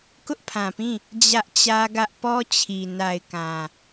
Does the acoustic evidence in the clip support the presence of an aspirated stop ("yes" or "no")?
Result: yes